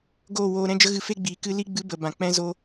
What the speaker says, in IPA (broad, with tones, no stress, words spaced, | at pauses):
ɡoː˦˨woː˧ ɾɛ̃˦d͡ʒə˦ɣɨ˧ fe˦ɡ͡biː˨ kɨ˧li˦ ɡ͡bɨ˦bə˨bã˨ k͡pɛ̃˦zo˦